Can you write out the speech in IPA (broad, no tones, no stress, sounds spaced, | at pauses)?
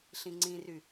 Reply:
ɬ ĩ ŋ͡ǀ ĩ r y